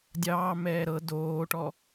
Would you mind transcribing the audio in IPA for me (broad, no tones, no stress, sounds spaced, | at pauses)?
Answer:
dʲ ɑː m ɛː ɾ ɤ d oː ʈ ɔ